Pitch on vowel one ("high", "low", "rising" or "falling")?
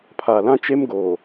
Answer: low